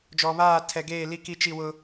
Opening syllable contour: low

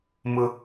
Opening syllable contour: high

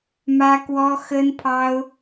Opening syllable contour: high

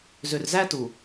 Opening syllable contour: low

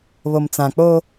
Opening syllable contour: low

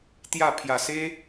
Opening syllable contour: falling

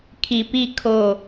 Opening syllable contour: low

